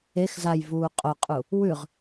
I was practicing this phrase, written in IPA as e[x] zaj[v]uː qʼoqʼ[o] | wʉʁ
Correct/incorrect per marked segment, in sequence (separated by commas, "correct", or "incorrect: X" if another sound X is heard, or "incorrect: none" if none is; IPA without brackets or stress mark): correct, correct, incorrect: u